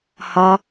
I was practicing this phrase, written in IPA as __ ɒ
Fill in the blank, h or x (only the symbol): h